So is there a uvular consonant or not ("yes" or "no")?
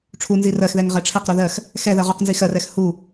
yes